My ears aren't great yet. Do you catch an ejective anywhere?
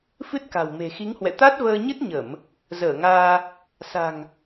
no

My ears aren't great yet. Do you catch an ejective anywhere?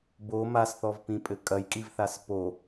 yes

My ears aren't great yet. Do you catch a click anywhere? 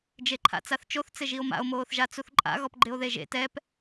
yes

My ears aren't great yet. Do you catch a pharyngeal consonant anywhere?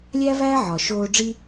yes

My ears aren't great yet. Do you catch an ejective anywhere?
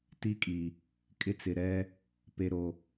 yes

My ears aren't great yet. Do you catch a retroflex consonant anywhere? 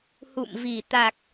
no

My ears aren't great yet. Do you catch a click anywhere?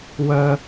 no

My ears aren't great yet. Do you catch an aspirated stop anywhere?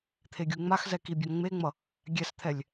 yes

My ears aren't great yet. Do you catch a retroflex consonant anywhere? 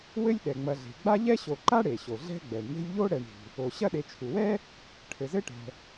yes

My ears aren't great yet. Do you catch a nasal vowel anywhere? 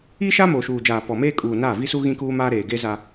yes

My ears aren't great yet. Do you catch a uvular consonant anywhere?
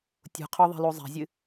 yes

